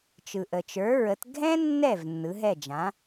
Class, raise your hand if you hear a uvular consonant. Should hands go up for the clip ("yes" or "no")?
no